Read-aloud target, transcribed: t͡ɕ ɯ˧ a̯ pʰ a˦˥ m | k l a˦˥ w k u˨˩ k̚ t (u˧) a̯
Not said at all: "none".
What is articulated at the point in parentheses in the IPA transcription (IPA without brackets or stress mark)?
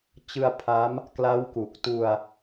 u˧